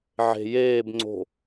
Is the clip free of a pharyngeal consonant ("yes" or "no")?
no